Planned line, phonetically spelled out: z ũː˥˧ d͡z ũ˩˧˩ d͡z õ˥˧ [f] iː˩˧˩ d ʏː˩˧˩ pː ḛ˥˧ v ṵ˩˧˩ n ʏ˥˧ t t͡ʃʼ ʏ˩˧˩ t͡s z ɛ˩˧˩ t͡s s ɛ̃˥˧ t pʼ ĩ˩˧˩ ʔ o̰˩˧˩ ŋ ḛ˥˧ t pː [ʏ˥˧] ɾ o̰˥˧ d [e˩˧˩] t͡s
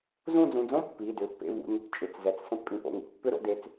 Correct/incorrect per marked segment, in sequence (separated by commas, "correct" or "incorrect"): incorrect, correct, correct